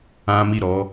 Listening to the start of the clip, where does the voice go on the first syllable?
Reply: high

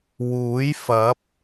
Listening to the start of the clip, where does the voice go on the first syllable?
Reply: rising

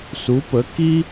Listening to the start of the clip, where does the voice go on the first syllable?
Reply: rising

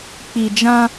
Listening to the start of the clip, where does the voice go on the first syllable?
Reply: low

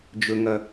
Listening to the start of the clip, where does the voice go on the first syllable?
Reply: low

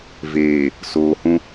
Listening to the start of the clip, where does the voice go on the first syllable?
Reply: low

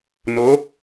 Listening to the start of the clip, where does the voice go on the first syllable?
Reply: rising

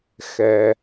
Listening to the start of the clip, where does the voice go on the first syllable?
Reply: low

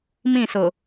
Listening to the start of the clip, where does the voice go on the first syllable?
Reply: falling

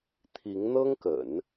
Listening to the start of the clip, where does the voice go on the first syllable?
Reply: rising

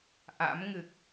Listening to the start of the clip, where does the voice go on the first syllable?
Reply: rising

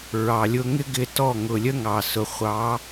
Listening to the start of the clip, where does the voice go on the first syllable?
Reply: low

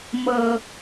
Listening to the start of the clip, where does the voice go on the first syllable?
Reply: low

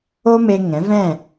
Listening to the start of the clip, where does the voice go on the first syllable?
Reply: high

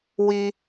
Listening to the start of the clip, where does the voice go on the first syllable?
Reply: high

